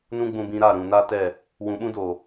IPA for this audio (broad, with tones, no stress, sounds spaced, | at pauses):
n ũ˦ ɡ͡b ũ˧ b ĩ˧ ɾ a˦˨ ɾ ũ˨ n a˦ t ɛ˦˨ | w ũ˨ ɓ ũ˦ d oː˨